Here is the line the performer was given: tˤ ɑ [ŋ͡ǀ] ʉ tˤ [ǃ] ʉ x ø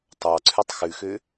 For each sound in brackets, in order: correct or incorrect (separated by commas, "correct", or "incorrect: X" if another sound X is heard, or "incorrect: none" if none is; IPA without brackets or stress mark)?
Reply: incorrect: ǀʰ, incorrect: x